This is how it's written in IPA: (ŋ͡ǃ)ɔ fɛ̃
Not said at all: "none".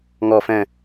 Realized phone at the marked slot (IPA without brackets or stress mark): ŋ